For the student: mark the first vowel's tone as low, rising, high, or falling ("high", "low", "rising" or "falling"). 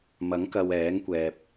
rising